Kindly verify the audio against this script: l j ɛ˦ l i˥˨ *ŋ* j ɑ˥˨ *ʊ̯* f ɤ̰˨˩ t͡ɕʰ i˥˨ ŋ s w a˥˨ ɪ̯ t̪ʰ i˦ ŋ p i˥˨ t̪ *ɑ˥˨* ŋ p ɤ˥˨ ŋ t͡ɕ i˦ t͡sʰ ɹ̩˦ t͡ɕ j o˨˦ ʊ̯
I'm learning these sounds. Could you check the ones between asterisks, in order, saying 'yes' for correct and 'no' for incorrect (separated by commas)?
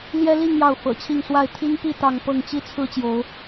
yes, yes, yes